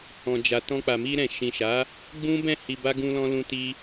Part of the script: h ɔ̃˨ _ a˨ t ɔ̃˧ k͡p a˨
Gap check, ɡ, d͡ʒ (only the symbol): d͡ʒ